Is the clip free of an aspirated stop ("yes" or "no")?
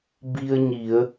yes